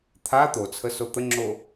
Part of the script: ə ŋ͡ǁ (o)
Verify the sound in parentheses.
correct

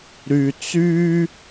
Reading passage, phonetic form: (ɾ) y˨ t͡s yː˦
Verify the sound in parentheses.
correct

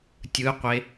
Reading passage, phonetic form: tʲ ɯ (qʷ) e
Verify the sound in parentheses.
correct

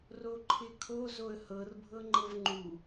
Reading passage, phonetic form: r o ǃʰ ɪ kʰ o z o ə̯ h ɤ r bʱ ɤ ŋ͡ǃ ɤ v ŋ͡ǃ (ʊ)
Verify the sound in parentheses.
incorrect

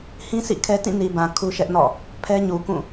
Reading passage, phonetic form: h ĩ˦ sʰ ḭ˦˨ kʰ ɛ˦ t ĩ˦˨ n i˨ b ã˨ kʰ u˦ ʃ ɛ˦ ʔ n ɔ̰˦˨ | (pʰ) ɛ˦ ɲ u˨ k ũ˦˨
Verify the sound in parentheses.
correct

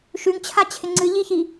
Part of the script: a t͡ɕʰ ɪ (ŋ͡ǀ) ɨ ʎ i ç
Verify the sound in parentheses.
correct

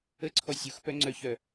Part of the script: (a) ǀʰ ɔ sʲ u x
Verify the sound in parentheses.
incorrect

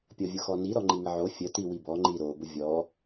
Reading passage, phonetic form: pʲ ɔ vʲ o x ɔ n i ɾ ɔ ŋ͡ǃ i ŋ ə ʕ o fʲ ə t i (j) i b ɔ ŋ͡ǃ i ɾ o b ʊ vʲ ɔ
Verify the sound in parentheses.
incorrect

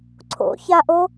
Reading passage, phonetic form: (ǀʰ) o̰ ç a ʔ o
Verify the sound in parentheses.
correct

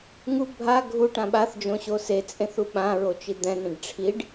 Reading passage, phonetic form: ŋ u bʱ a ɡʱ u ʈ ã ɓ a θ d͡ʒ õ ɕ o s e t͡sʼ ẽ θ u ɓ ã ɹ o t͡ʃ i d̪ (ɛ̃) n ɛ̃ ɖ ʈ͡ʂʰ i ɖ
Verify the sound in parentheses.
correct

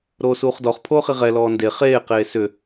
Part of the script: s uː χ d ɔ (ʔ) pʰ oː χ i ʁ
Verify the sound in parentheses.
incorrect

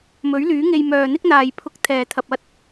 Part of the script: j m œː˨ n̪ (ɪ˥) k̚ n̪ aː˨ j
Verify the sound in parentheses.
correct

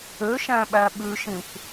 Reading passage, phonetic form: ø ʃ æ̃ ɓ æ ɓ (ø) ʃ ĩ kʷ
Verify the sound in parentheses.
incorrect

